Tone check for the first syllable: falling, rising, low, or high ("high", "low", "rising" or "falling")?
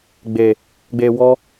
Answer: low